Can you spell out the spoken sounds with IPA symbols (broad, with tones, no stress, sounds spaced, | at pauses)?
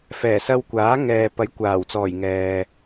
f ɛː˨˩ s ɐ˧ w kʷ aː˨˥ ŋ ɛː˨ p ɐ˨˥ j kʷ aː˨˩ w t͡s ɔː˨˩ j ŋ ɛː˨